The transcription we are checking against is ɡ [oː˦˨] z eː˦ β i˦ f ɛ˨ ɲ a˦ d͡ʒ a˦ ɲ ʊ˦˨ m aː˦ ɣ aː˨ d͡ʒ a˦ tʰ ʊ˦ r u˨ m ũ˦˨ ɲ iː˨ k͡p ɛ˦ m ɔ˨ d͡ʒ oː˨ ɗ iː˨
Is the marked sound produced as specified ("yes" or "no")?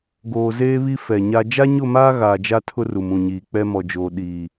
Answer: no